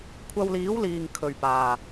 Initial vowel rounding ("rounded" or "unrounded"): unrounded